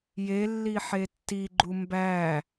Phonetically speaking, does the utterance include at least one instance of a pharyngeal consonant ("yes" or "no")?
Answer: yes